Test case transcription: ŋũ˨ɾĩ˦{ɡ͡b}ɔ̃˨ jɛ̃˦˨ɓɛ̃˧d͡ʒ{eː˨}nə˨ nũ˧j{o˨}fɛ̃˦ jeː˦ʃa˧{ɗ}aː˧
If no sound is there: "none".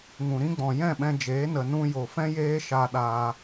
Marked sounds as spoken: ɡ͡b, eː˨˦, o˨, ɗ

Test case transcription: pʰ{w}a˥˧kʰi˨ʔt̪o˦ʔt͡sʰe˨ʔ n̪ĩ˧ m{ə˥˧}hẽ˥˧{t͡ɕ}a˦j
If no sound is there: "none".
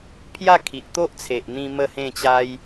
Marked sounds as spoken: j, ə˥˧, t͡ɕ

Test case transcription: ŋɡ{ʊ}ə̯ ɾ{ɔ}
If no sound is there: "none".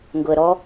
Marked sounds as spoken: ʊ, ɔ

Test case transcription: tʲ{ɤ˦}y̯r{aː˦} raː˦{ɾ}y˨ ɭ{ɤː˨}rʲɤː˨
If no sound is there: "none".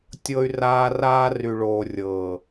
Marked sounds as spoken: ɤ˦, aː˦, r, oː˨

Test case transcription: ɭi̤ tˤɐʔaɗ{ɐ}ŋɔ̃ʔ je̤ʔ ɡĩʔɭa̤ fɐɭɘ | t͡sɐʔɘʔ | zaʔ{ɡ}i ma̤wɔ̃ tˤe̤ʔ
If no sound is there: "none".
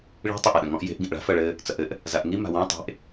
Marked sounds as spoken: ɐ̃, ŋ

